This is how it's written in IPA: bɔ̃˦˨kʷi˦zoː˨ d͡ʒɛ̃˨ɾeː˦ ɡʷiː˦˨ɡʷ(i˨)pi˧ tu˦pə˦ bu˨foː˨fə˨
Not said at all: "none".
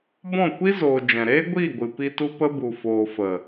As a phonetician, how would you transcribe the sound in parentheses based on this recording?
ɨ˨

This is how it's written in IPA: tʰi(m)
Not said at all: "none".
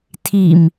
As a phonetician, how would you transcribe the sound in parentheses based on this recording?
m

